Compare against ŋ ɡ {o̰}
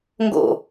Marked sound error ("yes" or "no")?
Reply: no